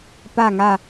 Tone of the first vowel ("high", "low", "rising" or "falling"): falling